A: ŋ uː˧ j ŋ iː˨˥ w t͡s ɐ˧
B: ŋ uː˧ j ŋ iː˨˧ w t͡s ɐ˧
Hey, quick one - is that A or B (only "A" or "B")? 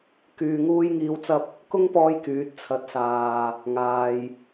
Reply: B